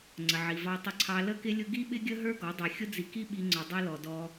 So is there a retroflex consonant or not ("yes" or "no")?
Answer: no